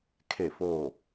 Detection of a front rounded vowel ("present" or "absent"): absent